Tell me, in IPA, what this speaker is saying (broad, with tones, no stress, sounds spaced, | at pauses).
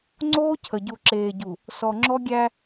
ŋ͡ǀ oː˦ cʰ ə˨ ɟ u˨ ǁ eː˨ ɟ u˨ | s ɔ˨ ŋ͡ǁ ɔ˦ ɡʲ æ˦